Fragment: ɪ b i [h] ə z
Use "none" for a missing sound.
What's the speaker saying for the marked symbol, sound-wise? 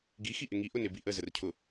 ʔ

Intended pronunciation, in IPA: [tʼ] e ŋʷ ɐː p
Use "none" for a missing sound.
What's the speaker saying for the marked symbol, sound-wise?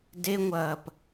d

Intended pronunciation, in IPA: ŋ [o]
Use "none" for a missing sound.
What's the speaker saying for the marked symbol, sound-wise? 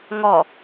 ɔ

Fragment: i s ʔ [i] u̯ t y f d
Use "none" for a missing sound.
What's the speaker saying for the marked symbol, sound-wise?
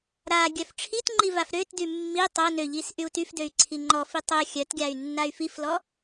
y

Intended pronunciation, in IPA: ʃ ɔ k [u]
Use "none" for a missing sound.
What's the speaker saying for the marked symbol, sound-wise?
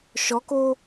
o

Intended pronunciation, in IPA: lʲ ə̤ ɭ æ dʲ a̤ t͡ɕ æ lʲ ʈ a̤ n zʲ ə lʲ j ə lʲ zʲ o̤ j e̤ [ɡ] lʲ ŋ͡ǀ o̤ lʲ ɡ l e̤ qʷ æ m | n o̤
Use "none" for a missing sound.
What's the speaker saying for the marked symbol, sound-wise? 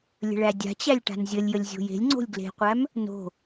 none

